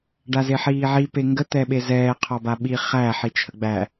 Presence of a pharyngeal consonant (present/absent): present